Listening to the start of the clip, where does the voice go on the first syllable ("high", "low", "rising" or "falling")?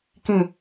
falling